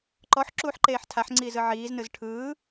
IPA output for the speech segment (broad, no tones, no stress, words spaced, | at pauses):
ǃɔħǁuːħǃeːħ tʰaħŋ͡ǀiːzɯ ʕiːznɯz ʈʰɯː